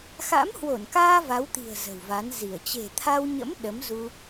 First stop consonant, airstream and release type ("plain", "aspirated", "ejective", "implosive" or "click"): plain